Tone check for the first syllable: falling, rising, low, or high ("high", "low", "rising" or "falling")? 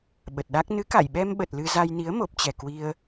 low